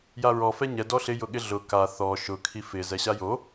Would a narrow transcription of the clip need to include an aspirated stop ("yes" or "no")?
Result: yes